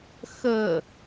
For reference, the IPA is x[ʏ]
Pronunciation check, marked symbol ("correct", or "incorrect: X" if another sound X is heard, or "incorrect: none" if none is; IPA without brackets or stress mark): incorrect: ə